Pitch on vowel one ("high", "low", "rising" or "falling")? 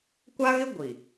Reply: high